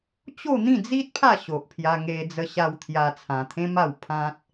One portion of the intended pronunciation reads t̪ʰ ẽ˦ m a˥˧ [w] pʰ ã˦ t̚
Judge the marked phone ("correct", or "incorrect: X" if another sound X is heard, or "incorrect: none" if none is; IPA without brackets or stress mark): correct